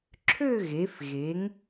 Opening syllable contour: falling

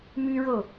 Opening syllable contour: high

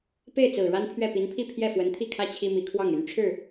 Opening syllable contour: falling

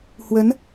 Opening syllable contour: rising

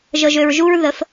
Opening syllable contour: low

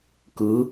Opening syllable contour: rising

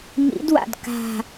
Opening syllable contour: rising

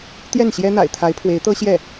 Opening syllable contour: falling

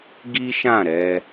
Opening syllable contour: high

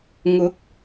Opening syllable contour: rising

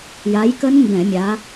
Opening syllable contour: rising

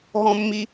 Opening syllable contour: high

